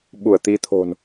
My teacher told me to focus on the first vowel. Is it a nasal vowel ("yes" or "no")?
no